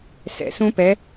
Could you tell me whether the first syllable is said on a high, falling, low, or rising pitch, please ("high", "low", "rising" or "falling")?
rising